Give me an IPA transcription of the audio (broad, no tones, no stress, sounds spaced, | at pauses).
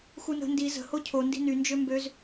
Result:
x u n ə̤ n d i z ə̤ h o cʰ o n d i̤ n y n d͡ʒ ø m b ø z